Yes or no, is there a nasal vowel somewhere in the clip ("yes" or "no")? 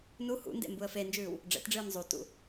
no